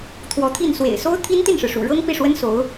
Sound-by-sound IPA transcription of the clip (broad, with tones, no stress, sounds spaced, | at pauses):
t̪ʰ w ɔ˧˥ t̪ʰ i˥˩ n s w ḛ˨˩ ɪ̯ s o˥ ʊ̯ t̪ʰ i˥ n t̪ i˥˩ n ʂ ɻ̩˩ ʂ ṵ˨˩ ɻ ɤ˥ ŋ p i˥˩ ʂ w ə˥ n s o˧˥ ʊ̯